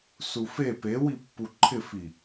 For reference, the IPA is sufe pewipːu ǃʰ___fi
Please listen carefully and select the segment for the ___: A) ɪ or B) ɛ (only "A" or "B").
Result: A